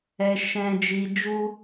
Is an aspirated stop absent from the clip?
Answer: yes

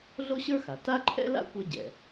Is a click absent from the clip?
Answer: no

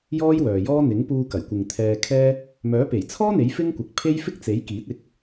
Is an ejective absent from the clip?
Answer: yes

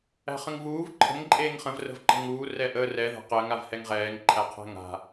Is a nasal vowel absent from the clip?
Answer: no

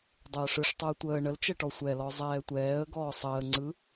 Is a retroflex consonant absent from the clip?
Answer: no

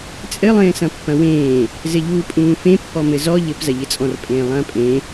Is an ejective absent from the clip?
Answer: no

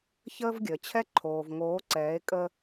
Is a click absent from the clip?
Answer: no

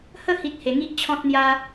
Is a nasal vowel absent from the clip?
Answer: no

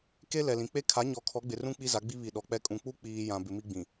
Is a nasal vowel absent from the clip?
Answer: no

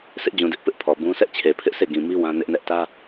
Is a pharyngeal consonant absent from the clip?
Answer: yes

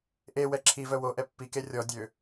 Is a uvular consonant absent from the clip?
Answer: yes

